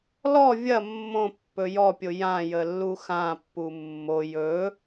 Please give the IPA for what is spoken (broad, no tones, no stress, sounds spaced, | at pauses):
l ɔ vʲ ɐ mː õ pː ɵ j ɔ pʲ o j ã j ə lː u x ã pː u mː o j ɵ